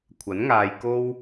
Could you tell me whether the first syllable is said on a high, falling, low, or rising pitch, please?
rising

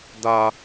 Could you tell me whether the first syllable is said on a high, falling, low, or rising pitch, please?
high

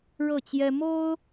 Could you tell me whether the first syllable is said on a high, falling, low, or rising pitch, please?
falling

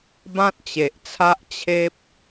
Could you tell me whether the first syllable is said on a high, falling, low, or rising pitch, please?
high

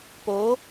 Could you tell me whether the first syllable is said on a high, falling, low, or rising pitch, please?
rising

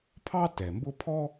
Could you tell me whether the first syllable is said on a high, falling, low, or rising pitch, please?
high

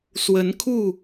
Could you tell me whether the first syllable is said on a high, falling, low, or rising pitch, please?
rising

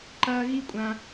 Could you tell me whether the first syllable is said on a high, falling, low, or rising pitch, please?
high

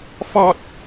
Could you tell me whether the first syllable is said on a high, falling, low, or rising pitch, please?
high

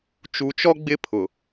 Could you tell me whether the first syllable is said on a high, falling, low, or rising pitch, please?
low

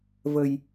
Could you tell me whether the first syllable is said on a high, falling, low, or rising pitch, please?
low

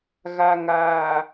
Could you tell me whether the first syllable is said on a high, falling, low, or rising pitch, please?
low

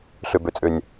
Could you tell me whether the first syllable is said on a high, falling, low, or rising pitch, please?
low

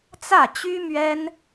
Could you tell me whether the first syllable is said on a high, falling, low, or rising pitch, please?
falling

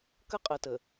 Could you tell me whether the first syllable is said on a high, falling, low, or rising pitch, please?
high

